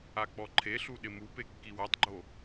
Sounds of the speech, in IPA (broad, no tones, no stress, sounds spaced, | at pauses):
a k͡p ɔ ǃʰ e ɬ u ɗ ɪ m u p e kː i w a tˤ ɡ͡ǃ o